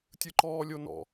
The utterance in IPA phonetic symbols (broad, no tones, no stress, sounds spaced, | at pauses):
tʲ ɯ ǃ ɔː lʲ o n ɔ̰